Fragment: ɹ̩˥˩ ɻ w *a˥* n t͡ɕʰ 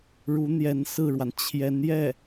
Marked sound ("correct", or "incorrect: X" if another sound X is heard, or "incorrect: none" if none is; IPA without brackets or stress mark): incorrect: a˩